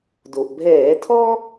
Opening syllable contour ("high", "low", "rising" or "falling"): low